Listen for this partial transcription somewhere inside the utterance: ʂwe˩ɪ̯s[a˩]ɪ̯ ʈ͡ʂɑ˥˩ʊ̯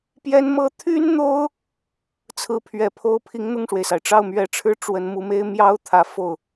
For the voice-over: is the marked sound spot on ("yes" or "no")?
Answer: yes